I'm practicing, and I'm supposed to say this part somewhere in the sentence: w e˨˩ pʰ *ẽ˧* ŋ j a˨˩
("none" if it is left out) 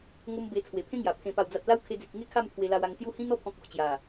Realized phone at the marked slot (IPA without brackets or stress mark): ẽ˦